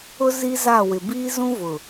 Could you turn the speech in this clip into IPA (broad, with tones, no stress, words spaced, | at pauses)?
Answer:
ʊ˦ zi˦za˦˨wɪ˨ biː˦zũ˦vʊ˨